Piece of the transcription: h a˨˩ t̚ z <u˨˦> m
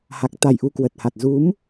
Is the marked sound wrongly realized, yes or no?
no